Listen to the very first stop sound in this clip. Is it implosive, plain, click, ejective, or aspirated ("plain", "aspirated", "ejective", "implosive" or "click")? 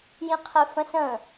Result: aspirated